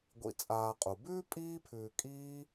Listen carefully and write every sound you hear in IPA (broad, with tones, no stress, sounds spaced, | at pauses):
ɡʷ ḭ˨ t͡sʼ aː˨ qʼ u˩ b ʉː˥ pʼ iː˦ pʰ ʉː˨ kʼ iː˦